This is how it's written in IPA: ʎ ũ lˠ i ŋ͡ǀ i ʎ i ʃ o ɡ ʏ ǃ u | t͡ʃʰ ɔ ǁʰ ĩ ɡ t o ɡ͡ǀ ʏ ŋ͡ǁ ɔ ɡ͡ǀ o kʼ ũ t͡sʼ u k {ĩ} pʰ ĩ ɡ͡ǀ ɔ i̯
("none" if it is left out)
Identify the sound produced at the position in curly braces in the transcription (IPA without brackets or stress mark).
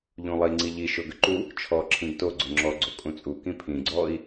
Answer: ĩ